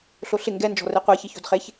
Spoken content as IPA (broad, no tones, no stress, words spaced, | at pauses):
ɬoɬɪ ŋɡɛ nd͡ʒɔ̤reqʷɛ çiço̤dχeç